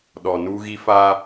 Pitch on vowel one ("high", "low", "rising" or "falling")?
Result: low